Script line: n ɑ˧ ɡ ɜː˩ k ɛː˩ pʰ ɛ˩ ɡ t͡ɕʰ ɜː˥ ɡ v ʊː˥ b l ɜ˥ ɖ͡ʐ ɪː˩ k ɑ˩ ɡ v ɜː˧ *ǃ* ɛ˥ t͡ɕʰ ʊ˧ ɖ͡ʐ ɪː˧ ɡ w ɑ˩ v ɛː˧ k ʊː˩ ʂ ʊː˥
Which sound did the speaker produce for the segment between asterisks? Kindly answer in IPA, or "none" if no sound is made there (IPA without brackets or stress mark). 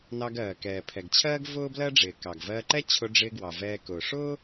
ǃ